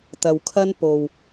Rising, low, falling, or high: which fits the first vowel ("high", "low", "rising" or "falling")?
low